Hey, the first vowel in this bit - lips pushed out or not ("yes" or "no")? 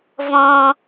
yes